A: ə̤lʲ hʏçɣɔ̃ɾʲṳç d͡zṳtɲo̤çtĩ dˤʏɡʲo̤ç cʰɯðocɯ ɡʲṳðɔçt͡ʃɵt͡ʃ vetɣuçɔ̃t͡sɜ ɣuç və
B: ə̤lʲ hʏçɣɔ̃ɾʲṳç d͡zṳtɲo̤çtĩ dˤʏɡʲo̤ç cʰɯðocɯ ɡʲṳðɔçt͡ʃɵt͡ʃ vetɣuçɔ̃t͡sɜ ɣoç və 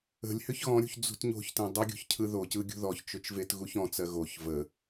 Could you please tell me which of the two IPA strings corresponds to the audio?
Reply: B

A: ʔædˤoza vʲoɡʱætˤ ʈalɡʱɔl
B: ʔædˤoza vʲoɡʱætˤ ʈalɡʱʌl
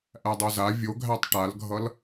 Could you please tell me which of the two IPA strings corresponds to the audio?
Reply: B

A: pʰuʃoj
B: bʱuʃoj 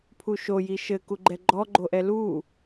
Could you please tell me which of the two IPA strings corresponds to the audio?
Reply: A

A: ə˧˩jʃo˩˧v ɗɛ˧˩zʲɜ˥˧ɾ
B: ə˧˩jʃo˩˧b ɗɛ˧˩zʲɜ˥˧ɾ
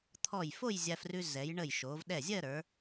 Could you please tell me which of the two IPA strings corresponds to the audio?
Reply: A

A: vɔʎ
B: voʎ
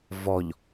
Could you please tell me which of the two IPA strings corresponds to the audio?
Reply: A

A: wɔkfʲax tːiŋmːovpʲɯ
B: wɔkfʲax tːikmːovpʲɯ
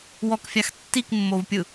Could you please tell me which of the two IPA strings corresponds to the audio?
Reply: B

